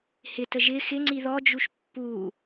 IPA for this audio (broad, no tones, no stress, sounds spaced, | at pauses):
h ɪ t ə ʒ ɪ x ɪ ŋ͡ǀ i ð ɔ d͡ʒ u ʃ pː u